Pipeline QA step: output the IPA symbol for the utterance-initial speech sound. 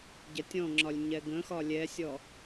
ɟ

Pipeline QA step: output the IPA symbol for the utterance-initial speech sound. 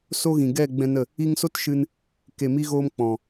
s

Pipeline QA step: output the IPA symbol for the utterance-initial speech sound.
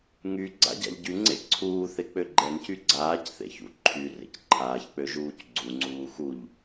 ŋ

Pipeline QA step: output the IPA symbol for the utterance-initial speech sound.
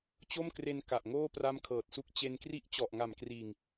t͡ɕ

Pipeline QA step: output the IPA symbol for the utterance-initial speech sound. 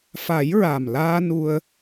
f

